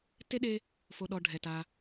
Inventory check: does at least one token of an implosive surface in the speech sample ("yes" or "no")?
yes